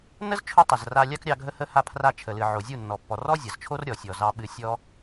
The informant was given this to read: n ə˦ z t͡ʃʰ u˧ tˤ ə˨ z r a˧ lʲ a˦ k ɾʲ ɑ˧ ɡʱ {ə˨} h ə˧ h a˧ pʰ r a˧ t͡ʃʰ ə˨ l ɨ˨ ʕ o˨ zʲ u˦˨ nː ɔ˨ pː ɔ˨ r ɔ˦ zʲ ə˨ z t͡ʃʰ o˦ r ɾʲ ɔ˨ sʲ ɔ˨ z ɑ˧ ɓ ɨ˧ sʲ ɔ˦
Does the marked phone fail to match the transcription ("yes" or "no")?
yes